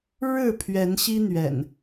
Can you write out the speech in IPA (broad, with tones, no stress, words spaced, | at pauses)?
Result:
ɻɻ̩˥˨ pʰɥɛ˨˦nɕi˦n̪ɥɛ̰˨˩n